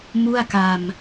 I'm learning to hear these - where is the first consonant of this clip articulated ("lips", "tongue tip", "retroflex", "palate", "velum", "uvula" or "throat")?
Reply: lips